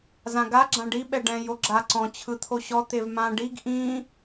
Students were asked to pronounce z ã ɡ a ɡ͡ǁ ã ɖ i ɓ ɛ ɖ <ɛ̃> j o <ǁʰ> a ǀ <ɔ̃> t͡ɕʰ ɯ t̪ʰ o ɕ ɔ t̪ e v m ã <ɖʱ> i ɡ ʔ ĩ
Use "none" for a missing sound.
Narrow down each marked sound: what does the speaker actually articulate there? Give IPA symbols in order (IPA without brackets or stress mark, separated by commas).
ɛ̃, ɡ͡ǁ, ɔ̃, ɖ